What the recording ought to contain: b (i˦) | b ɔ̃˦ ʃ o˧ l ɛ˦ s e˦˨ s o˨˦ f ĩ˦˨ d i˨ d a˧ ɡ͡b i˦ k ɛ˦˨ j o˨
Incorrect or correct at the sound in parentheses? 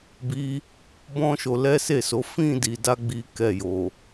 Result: incorrect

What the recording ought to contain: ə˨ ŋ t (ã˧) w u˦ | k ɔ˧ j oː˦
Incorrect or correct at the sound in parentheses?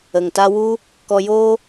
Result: incorrect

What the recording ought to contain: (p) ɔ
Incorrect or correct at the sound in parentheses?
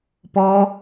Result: correct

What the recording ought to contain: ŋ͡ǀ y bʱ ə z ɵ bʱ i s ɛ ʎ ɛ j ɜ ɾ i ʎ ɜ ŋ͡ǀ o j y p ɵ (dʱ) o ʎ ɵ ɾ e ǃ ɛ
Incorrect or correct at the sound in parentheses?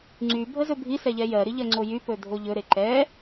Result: correct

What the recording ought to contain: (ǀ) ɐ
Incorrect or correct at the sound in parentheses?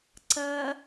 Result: correct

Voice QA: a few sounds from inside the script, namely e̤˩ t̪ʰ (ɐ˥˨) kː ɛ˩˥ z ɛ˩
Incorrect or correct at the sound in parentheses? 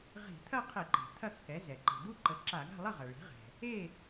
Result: correct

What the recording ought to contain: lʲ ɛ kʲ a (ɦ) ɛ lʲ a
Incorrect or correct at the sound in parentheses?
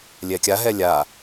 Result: correct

